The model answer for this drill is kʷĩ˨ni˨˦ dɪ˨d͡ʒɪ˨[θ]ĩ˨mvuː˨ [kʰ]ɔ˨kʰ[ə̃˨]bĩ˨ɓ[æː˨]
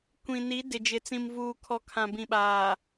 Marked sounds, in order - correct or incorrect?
incorrect, correct, incorrect, incorrect

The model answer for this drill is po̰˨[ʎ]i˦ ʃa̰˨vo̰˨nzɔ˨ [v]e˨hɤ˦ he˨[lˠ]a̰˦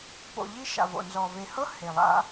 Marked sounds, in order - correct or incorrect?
correct, correct, correct

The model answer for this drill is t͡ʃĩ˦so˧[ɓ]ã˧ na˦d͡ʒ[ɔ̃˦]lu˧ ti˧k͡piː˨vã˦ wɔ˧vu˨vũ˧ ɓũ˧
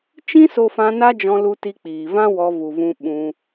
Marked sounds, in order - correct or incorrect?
incorrect, incorrect

